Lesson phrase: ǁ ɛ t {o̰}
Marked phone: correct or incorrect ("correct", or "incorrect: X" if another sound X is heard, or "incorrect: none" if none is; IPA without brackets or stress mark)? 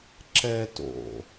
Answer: correct